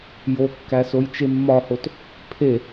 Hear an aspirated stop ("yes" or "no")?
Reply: yes